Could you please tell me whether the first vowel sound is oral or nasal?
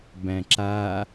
nasal